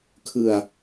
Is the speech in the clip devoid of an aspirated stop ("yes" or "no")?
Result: no